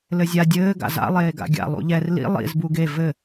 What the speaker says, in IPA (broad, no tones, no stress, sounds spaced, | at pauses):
l ɘ zʲ a dʲ ɘː ɡ a̰ z a̰ lˠ eː ɡ a̰ ɡʲ a̰ lˠ ṵ ʎ ɛ r l ḭ lˠ ḭ z b u ɡ e v ɘ